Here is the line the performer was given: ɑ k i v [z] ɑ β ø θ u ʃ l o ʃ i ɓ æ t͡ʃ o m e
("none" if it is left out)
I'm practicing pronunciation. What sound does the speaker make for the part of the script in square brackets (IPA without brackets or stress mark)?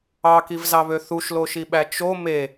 z